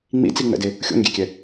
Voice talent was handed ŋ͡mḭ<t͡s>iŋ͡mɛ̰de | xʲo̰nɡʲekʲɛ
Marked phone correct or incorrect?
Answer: correct